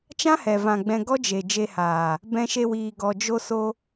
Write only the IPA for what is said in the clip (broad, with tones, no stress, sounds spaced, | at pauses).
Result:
t͡ʃ ã˦ h ɛ˨ v ã˨ ɡ͡b ɛ̃˧ ɡ ɔ˦ d͡ʒ e˨ d͡ʒ e˧ h aː˨ | b ɛ̃˧ ʃ e˧ w iː˨ ɡ ɔ˨ d͡ʒ o˧ s o˧